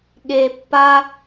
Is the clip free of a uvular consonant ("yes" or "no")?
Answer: yes